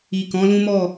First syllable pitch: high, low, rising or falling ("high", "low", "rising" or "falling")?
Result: low